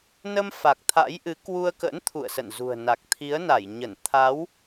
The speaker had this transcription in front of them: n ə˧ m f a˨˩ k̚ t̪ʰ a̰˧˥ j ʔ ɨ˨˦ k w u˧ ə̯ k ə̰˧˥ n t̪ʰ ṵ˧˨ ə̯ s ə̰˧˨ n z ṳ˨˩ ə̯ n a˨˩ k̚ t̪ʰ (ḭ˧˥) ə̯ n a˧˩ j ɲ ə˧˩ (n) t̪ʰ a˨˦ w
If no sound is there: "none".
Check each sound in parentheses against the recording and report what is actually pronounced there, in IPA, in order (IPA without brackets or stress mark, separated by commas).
i˨˦, n